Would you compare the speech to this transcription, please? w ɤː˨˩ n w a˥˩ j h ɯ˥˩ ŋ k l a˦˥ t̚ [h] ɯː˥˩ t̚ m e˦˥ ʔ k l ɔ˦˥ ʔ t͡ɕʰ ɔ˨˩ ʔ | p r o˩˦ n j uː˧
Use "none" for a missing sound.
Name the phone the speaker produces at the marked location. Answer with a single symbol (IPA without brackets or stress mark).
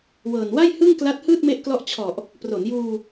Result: h